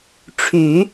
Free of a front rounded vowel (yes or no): no